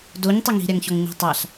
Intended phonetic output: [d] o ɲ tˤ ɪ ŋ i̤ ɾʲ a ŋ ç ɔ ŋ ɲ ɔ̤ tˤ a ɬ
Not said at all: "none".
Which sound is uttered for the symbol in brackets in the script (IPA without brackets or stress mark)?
d